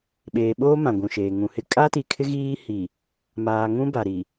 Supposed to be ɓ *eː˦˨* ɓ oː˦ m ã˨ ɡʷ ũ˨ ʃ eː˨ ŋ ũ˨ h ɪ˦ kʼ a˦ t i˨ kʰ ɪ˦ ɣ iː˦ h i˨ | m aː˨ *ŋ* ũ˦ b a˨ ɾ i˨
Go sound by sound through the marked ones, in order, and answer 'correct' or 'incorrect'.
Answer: incorrect: eː˨, correct

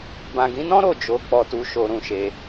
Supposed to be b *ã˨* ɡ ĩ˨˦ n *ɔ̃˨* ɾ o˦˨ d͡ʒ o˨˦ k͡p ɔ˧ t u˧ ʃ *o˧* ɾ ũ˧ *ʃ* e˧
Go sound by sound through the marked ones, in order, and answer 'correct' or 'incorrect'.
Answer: correct, incorrect: ɔ̃˦, correct, correct

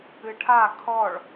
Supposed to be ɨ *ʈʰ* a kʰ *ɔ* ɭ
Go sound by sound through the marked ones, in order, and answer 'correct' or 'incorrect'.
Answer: correct, correct

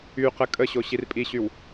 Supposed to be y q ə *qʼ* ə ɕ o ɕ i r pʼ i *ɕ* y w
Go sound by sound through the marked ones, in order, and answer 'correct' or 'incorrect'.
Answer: incorrect: kʼ, correct

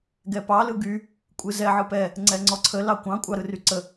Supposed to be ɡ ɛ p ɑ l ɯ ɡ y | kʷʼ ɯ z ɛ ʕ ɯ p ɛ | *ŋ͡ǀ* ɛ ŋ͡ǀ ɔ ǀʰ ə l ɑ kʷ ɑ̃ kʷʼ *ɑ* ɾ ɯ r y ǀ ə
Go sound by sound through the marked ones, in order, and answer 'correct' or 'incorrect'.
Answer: correct, correct

